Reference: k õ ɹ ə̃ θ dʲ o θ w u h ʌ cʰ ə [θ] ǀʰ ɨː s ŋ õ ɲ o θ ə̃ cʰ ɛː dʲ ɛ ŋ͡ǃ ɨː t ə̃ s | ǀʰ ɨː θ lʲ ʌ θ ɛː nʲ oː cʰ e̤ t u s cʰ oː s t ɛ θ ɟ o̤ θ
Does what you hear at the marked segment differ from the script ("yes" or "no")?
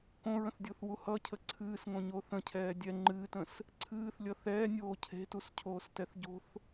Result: yes